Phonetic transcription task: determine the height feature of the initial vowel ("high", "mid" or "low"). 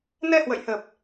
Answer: mid